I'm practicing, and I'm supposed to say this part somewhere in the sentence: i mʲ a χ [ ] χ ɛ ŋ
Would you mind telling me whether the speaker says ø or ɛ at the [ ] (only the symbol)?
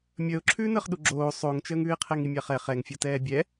ɛ